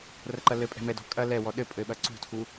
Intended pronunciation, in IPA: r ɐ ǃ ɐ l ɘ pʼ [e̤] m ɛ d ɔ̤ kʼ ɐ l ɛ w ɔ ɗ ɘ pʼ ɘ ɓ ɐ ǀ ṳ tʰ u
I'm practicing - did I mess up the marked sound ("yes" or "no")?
yes